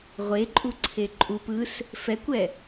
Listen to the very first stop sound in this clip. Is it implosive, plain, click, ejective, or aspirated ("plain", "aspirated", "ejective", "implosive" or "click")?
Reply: click